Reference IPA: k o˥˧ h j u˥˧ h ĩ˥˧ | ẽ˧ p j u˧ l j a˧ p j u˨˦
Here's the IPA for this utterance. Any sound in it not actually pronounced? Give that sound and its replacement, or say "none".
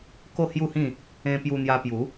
l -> n̪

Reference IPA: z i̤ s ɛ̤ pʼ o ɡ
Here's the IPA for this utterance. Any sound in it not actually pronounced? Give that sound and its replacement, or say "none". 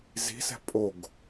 none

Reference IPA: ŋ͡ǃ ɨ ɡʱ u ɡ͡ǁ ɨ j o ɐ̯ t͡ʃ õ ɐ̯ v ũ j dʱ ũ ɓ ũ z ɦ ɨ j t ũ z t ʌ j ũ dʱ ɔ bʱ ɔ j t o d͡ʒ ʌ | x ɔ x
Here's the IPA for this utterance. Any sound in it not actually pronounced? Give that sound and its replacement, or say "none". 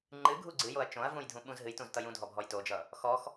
ɡ͡ǁ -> ɡ͡ǀ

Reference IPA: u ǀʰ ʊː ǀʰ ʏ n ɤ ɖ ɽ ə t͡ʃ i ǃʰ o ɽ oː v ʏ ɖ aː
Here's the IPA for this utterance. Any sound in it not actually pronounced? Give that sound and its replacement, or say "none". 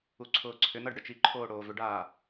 o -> oː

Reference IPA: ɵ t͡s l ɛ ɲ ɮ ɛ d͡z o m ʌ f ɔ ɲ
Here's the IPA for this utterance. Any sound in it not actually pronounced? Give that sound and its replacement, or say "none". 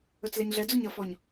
m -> ɲ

